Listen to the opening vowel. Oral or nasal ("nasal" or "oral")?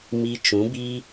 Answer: oral